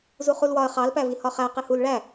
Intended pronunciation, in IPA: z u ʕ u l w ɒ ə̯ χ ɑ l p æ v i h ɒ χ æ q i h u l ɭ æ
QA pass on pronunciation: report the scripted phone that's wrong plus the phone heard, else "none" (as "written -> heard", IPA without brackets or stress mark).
ʕ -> χ